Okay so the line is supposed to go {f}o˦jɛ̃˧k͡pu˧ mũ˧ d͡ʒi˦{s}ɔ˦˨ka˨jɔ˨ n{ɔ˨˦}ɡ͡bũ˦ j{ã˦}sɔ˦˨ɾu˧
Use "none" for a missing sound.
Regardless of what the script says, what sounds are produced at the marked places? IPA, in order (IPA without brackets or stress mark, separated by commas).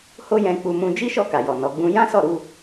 h, ʃ, ɔ˨˦, ã˦